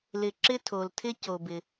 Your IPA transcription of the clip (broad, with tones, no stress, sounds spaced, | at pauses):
l ɪ˩ ǁ ɪ˧ tʰ o˩ l tʰ ɪ˧ c o˩ b ɪ˩